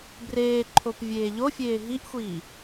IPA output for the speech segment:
b r eː ǃʰ o p vʲ eː ʎ o fʲ eː ɦ i ʔ xʷ iː

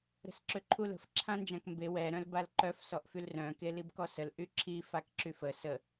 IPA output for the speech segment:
ɾ ə̤ s ǁ ø ǃʰ u l ə̤ f ǁʰ ã n d͡ʒ ã k m b e w ɛ ɾ œ̃ l b a l ǃ œ f s ɔ ʔ f y l r œ̃ k e l i b k ɔ s ə l ʔ y ǁʰ i f a k ǁ y f ə s ə

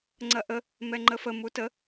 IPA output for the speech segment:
ŋ͡ǀ ɐ ʔ ə | m ɛ ŋ͡ǃ ə f ə m u t ə

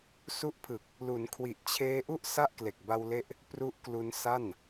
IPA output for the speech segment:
s u˦˥ ʔ pʰ ɯ˨˩ k̚ | l u˩˦ n kʰ w i˨˩ ʔ t͡ɕʰ eː˦˥ ʔ u˥˩ ʔ s a˥˩ ʔ k l e˨˩ k̚ b a˧ w l e˦˥ ʔ | p r u˦˥ ʔ k l u˧ n s a˥˩ n

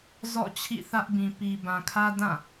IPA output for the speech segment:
z ɔ̰˦˨ t͡ɕʰ ḭ˦˨ θ ä˦ ʔ b ĩ˨ p i˨ b ã˨ kʰ ä˦ d ã˦˨

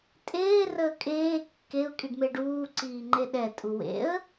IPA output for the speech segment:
tʼ eː r əː kʼ eː kː e ʊ̯ kʼ i ɖ m e ɖ uː ǀ iː ŋ͡ǃ e ɗ ɛ tʼ u w ḛ ə̯

